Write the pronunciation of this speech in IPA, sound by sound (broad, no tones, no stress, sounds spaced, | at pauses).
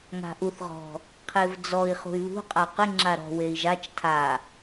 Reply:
ŋ a̤ ʔ u θ ʁ ɔ̤ | qʰ e v d͡z ɔ i̯ χ ṳ y̯ β ṳ qʼ a q ɪ ŋ͡ǁ a ɾ ɔ̤ w e i̯ ʒ a t͡ʃ tʰ a